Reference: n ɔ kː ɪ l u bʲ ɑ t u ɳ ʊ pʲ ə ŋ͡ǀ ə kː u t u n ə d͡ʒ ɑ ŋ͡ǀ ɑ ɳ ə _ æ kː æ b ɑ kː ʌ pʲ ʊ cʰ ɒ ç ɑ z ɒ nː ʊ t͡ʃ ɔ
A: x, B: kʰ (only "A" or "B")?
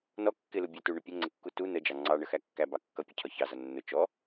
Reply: A